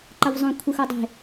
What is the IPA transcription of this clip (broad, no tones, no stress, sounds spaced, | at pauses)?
ǃ ʌ v zˤ õ kʷʰ ɯ x o dˤ e̤